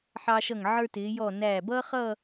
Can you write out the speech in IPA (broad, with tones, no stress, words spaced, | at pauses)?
ħɑ˧ʃʌ˧˩ŋ ʕə˞˧tɪː˩˧jɔ˧˩ næː˧˩ bʌː˥χʌː˥˧